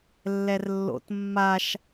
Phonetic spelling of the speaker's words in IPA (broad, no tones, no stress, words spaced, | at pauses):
lːɛrlːo̰t mːaʃ